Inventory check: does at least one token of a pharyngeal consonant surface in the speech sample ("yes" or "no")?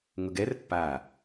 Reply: no